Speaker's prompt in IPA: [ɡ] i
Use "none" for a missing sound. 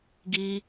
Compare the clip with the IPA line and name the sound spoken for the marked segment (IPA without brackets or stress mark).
ɡ